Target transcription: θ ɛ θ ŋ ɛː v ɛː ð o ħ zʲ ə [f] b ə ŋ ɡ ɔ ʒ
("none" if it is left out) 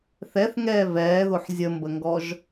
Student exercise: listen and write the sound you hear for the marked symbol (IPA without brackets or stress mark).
m